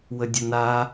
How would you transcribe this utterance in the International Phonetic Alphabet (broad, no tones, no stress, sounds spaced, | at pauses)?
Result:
w ə dʲ ə n a